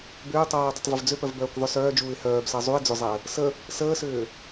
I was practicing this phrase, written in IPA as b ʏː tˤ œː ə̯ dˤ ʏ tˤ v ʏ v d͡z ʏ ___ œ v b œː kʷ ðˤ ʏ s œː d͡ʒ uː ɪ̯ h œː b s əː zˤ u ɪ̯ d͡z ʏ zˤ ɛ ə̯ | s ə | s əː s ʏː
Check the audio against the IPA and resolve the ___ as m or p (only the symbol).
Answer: p